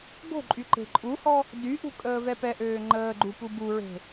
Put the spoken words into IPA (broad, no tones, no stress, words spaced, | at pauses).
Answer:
ɡo̤ǃʼy ǃe̤ǃʼuhɔ | dyʔṳ kʼəːvɛpɛʔøː ŋ͡ǃəːɡ͡ǃu pubuɹe̤